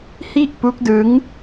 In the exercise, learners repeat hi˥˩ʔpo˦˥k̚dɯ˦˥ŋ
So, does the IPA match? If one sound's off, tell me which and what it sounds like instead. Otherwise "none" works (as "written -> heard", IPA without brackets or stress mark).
o˦˥ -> u˦˥